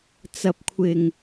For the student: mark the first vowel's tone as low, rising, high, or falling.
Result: low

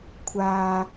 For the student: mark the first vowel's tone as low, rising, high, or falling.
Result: low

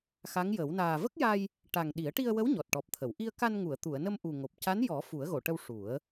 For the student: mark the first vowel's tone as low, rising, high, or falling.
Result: rising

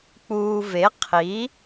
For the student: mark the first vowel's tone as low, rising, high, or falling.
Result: low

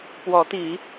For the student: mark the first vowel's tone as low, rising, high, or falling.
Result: rising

